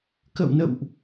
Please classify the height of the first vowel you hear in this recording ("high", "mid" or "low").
mid